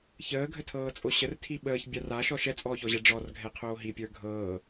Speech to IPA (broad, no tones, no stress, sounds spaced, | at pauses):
ç əː ɡʱ ə tʰ ɤː t͡sʼ o ɕ ə r tʰ i ɓ əː ç bʲ a r a ʃ ɔ ʃ ɛ t͡sʼ ɔː ç ɔ ʑ ɛ ɖ͡ʐ ɔ r ɡʱ ɛ qʰ oː ɦ i pʲ ə˞ ɡʱ ɤː